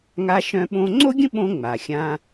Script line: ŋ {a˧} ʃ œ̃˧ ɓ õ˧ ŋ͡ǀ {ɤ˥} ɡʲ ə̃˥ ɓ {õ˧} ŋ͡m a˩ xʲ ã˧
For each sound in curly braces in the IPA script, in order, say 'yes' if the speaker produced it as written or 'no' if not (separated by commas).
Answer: yes, no, yes